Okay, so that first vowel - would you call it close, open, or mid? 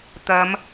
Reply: open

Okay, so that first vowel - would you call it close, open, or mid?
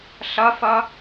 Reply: open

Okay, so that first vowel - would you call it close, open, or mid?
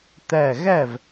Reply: open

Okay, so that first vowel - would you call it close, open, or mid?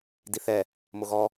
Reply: close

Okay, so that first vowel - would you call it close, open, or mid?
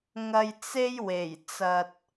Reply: open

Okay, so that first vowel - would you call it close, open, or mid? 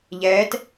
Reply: mid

